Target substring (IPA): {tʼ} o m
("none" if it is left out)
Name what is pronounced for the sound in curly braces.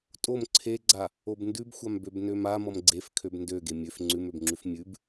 tʼ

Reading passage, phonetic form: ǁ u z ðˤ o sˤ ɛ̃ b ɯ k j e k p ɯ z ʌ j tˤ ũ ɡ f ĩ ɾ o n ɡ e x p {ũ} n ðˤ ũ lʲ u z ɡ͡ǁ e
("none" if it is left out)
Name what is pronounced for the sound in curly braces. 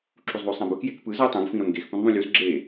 ũ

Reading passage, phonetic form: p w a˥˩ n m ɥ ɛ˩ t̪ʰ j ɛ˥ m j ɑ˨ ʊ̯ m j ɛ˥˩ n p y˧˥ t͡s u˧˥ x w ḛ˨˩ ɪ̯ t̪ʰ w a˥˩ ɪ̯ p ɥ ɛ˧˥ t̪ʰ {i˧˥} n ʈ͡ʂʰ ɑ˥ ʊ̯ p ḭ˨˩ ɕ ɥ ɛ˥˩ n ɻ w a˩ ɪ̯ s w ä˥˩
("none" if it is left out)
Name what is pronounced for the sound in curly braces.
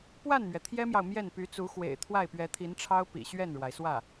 i˧˥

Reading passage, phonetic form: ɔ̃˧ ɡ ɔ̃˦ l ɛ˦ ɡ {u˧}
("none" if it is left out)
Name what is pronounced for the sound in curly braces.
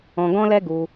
u˧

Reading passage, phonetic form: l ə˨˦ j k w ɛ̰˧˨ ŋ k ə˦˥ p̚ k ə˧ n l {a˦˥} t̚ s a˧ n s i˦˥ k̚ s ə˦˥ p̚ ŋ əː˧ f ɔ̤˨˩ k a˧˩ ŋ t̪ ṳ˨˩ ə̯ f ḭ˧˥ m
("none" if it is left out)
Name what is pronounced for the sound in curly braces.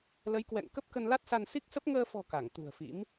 a˦˥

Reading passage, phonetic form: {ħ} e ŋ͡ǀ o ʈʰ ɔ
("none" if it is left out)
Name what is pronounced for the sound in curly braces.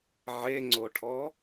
ʕ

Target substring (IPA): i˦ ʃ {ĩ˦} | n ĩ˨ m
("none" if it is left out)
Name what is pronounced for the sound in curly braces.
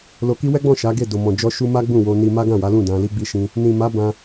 ĩ˦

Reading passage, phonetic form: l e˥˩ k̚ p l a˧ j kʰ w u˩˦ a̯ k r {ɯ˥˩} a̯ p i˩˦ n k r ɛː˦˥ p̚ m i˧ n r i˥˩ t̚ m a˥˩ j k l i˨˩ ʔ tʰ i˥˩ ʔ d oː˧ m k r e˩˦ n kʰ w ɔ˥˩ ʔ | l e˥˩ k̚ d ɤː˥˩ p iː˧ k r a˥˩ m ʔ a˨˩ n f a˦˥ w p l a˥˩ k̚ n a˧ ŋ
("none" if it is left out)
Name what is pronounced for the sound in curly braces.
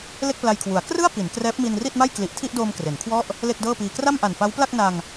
ɯ˥˩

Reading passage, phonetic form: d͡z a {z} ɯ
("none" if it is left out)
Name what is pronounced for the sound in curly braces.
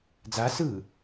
s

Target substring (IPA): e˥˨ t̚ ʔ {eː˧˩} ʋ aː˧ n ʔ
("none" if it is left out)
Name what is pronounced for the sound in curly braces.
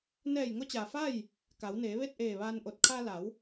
eː˧˩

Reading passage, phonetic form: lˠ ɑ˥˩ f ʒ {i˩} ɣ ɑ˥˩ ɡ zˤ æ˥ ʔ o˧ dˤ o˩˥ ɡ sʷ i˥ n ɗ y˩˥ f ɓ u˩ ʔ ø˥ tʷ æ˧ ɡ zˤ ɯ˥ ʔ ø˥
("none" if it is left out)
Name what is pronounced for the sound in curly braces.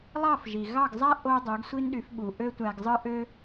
i˩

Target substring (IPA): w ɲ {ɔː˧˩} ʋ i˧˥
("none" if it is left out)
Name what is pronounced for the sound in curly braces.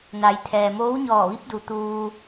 ɔː˧˩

